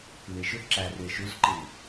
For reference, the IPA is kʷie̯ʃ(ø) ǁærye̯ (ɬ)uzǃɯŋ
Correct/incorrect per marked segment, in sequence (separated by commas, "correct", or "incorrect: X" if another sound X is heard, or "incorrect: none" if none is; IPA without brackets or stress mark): correct, incorrect: ʃ